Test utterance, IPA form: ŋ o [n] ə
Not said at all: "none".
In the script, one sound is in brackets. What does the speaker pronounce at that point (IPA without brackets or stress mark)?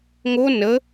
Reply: n